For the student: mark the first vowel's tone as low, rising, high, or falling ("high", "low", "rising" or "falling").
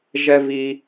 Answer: high